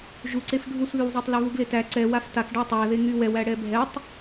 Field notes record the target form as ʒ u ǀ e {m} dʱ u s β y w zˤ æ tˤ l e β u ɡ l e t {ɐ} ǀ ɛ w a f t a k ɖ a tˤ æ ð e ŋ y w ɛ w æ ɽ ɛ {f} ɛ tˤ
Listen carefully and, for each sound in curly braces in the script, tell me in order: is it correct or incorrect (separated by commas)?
incorrect, incorrect, incorrect